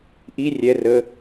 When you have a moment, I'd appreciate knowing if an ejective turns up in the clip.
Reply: no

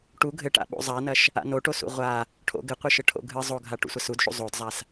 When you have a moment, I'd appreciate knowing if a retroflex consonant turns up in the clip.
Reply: yes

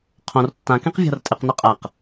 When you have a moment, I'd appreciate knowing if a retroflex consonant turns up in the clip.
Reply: no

